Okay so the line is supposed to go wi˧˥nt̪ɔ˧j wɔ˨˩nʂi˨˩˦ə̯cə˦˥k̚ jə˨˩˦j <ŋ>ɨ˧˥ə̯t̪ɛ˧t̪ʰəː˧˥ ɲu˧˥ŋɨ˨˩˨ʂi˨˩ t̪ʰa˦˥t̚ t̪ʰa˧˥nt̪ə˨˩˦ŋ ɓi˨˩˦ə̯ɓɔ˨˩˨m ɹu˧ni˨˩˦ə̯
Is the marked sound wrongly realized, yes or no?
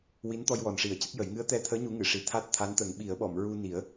no